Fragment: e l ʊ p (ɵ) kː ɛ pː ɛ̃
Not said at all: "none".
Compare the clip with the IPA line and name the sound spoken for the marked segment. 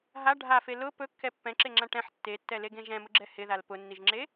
ɵ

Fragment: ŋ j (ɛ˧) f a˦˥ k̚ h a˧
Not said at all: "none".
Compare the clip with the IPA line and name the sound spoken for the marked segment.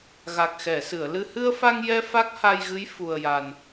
ɛ˧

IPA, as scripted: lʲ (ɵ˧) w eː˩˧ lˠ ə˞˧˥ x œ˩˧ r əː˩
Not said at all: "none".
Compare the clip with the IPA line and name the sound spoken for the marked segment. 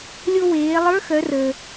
o˧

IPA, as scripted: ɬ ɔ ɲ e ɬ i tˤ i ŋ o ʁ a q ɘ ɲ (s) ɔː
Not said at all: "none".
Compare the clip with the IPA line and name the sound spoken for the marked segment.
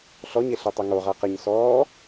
s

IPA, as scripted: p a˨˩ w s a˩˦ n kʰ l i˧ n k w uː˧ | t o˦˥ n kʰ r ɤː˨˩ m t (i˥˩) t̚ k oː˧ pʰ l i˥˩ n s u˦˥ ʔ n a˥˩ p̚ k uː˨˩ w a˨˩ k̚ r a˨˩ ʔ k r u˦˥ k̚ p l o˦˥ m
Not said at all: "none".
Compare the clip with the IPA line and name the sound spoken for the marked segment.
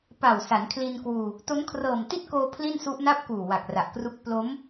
i˥˩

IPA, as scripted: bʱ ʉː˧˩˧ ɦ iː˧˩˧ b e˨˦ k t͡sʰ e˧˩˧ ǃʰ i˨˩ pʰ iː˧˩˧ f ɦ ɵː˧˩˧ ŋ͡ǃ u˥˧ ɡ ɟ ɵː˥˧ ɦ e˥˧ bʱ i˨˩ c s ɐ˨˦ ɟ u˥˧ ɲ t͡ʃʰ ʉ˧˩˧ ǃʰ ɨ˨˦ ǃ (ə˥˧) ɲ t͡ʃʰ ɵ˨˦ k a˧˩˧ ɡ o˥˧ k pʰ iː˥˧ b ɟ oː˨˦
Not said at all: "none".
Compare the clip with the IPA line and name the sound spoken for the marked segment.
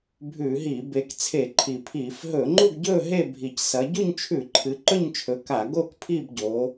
ɵ˥˧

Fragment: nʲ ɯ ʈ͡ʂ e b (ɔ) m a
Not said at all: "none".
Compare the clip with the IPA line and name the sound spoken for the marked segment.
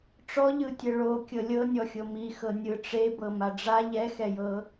ɤ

